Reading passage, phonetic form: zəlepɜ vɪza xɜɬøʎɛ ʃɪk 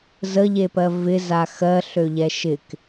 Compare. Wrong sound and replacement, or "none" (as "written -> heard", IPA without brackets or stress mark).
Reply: l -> ʎ